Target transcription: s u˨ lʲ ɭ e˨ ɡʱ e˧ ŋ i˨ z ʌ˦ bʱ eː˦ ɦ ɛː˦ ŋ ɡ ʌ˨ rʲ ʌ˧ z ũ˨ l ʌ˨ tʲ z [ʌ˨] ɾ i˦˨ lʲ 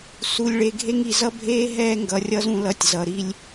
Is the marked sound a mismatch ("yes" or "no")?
no